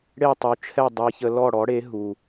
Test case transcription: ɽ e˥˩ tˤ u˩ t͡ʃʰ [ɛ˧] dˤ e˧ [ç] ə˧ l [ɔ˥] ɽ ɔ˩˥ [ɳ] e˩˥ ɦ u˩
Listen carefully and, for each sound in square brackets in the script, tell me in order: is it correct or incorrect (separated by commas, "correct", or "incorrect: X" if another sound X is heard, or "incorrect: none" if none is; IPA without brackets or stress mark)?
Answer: incorrect: ɛ˥˩, correct, incorrect: ɔ˥˩, incorrect: ɽ